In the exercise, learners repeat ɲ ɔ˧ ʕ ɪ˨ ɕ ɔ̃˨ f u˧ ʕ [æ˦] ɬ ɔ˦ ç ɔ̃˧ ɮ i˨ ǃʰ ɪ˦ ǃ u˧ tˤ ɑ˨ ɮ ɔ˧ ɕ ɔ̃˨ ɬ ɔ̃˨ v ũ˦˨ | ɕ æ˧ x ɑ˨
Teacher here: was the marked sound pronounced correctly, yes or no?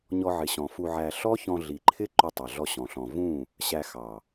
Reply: no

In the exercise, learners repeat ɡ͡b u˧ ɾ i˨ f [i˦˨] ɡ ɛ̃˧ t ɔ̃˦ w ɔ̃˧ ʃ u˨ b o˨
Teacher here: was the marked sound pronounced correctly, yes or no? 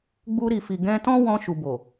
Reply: no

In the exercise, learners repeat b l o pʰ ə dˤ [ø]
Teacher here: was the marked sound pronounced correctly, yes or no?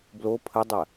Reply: no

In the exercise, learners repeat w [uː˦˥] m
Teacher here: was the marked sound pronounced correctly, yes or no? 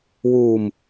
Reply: no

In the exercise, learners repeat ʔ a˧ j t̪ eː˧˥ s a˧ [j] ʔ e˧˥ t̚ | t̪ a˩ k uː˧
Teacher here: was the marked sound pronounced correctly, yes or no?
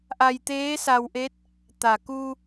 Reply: no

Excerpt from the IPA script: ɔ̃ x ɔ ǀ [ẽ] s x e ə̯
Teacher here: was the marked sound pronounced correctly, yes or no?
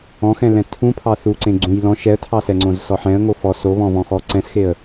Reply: no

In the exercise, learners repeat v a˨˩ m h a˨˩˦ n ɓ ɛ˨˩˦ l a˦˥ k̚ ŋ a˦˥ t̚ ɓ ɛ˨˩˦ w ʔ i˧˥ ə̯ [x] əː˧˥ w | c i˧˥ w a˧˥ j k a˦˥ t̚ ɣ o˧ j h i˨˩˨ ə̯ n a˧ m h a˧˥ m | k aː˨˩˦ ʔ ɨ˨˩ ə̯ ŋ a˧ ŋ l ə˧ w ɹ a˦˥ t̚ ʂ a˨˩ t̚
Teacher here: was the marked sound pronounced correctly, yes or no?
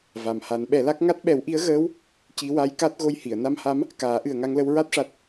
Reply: no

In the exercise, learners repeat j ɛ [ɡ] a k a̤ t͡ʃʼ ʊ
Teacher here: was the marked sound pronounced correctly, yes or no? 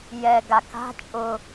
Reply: yes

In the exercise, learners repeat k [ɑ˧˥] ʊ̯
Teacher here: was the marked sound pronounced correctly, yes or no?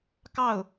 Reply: no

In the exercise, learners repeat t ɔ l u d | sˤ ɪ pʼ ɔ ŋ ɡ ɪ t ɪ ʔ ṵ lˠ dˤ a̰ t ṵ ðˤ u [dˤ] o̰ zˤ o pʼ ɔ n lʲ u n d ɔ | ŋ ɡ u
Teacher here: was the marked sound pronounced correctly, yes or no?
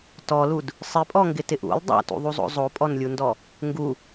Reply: no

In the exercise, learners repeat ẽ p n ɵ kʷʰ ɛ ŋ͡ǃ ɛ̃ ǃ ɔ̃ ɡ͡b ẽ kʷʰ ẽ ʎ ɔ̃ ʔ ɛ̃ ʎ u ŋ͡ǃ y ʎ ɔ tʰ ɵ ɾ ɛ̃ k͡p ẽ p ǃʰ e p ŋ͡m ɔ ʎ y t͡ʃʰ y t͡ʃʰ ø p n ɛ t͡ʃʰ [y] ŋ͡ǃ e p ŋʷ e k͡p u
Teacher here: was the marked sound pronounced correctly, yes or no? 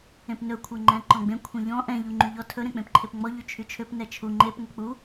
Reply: no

